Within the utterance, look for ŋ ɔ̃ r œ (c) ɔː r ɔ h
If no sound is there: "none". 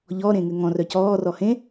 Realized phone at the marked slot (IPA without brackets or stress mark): c